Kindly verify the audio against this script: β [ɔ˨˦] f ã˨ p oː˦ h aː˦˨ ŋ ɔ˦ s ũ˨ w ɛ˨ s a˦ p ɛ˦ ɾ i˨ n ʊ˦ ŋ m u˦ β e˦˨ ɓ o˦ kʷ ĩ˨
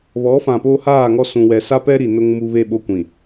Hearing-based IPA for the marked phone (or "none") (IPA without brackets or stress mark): ɔ˨˦